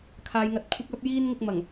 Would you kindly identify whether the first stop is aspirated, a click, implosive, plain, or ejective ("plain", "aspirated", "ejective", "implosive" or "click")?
aspirated